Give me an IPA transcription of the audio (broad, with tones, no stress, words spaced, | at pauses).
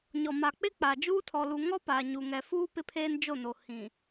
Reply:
ɲɔ˨ ma˨k͡pɪ˦k͡pa˨ d͡ʒuː˦tʰɔ˨lu˨ ŋɔ˦paː˨ ɲu˨ŋɛ˨fuː˦ pɪ˦pʰeː˦nd͡ʒo˦˨no˨ hĩ˨